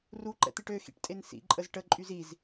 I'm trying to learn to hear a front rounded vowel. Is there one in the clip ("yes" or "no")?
yes